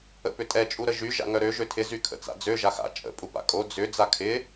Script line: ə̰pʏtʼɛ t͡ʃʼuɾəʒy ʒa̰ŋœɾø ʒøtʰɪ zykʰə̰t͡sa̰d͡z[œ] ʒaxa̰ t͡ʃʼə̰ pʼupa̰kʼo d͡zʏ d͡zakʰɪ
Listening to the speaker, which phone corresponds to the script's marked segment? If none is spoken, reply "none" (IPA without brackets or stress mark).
ø